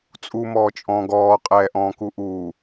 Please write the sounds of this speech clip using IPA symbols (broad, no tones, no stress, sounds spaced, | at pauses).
t͡sʼ u m ɔː t͡ʃʼ ɔ̃ː ɡ ɔː qʼ ɛː ʔ ɔ̃ː k u ʔ uː